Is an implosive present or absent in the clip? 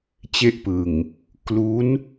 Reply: absent